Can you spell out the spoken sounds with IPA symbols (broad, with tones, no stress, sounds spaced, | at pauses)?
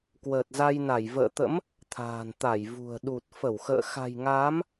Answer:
k w əː˨˩ t̚ z a˧ j n a˧˩ j v ə̰ː˧˨ t̪ ə̰˧˥ m | t̪ʰ a̤ː˨˩ n t̪ a˧˩ j v ṳ˨˩ ə̯ ɗ u˨˩ t̚ f ə˧˩ w x ə̰ː˧˨ x a̤˨˩ j ŋ aː˨˦ m